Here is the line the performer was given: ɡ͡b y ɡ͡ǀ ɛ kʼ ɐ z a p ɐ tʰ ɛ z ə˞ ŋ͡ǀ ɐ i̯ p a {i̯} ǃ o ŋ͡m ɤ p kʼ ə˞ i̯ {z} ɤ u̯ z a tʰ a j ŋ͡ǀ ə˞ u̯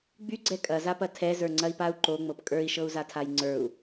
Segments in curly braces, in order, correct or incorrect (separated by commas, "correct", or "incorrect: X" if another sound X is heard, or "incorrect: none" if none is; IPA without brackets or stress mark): incorrect: u̯, incorrect: ʃ